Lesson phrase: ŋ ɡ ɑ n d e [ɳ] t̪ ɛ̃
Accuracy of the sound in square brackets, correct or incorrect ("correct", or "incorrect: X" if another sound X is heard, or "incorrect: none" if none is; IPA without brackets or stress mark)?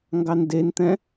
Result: incorrect: n